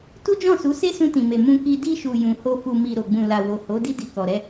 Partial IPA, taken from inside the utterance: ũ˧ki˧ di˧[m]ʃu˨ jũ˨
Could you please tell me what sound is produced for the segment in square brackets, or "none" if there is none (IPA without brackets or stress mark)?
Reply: none